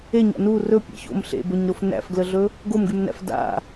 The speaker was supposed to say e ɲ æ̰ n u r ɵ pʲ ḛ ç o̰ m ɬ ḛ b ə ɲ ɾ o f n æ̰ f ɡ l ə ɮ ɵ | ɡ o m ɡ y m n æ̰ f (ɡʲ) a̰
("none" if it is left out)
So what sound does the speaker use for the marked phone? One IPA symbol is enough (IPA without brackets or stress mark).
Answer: d